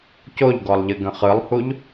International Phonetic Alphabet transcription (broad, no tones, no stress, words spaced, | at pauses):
coʎɡɔlˠʎɨ ɡə̃χɯlˠhuʎ